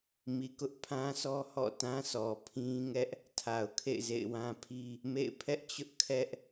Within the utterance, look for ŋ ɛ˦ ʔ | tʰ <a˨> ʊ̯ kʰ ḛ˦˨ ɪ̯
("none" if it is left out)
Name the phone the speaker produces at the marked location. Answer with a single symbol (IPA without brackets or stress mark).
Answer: a˨